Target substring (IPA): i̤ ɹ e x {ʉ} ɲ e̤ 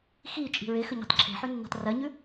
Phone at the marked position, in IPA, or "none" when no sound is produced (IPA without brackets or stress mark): ə